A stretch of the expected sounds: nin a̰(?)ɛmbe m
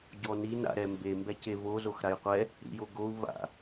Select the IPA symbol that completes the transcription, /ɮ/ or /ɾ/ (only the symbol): ɾ